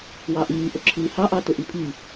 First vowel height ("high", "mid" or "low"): low